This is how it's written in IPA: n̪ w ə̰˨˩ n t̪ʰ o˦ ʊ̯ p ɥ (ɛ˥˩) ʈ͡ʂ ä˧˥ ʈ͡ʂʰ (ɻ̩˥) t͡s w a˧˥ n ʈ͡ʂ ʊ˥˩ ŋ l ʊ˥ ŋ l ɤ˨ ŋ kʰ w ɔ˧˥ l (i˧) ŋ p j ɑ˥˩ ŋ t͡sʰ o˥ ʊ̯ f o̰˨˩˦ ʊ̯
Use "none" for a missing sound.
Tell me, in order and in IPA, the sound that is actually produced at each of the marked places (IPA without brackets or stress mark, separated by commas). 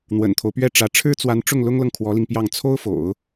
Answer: ɛ˥˩, ɻ̩˥, i˧